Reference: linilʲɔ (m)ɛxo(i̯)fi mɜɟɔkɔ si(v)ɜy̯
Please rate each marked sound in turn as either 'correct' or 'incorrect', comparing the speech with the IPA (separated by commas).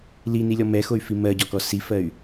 correct, incorrect, incorrect